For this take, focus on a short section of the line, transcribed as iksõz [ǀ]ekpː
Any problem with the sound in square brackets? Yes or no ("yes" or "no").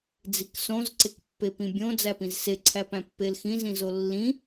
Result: no